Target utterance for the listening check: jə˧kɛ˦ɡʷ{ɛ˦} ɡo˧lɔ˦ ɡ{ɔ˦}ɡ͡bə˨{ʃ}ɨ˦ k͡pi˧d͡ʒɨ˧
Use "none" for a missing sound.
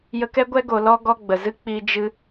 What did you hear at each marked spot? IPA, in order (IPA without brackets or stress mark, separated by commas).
ɛ˦, ɔ˦, z